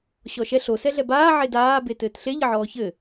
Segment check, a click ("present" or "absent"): absent